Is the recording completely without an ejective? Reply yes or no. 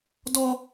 yes